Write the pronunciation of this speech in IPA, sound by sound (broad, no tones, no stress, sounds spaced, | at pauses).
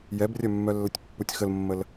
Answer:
j ɛ b rʲ œ mː œ lː ə tʲ pː u tʲ x ə l mː ə l